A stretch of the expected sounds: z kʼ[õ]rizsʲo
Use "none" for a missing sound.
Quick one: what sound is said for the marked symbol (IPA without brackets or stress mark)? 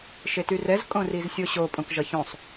õ